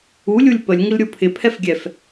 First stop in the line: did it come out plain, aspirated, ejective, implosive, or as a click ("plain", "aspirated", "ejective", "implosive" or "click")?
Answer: plain